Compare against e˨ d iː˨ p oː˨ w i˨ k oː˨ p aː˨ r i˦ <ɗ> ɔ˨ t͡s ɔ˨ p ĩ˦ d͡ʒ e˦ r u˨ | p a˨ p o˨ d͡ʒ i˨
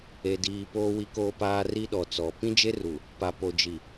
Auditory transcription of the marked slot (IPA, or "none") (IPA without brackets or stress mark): ɗ